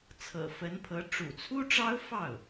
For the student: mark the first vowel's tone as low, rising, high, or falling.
low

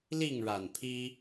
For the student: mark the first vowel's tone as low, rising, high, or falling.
falling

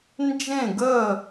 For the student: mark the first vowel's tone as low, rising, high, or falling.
falling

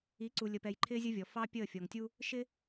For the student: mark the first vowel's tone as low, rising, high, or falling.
rising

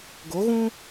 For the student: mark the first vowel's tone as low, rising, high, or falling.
rising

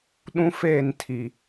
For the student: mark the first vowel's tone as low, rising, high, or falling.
high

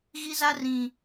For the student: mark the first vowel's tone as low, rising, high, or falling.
high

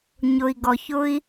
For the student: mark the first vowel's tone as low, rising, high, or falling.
low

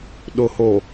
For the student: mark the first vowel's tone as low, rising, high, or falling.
low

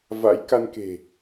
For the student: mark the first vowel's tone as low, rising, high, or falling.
rising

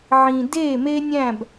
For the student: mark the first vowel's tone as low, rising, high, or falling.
low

